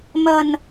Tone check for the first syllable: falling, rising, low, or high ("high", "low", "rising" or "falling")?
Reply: low